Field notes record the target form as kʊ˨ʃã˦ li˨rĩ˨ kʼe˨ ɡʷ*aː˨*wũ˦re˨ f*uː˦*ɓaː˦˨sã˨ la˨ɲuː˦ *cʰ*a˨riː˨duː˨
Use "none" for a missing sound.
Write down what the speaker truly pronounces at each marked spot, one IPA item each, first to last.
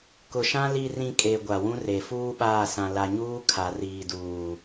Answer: a˨, uː˦, kʰ

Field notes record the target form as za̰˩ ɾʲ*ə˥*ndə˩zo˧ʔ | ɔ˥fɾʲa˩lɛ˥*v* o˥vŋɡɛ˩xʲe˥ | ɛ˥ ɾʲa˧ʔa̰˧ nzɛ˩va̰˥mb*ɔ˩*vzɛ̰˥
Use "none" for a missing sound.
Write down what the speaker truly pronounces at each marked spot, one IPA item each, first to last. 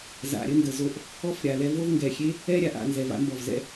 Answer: ə˥, v, ɔ˩

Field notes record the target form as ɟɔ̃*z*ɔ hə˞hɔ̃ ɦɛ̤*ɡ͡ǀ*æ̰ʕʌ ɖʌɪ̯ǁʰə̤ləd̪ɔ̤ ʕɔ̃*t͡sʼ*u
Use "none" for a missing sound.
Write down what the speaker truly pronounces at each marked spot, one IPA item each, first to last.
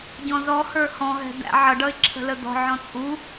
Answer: z, d̪, t͡sʼ

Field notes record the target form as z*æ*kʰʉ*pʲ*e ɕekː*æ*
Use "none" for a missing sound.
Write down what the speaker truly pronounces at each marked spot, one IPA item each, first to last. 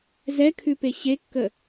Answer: ɛ, p, ə

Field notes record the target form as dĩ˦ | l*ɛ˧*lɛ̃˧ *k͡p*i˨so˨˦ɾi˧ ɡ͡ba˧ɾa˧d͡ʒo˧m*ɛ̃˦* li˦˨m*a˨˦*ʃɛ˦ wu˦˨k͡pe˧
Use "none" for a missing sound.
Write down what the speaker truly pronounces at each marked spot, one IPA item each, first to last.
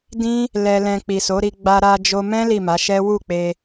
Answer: ɛ˧, k͡p, ɛ̃˦, a˨˦

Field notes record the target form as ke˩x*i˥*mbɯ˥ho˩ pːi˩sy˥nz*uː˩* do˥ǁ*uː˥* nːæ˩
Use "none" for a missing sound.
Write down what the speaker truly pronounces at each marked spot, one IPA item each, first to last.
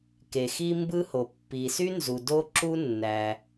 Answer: i˥, u˩, u˥

